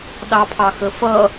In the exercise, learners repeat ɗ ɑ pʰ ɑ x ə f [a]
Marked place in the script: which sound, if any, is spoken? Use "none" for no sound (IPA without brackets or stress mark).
ʌ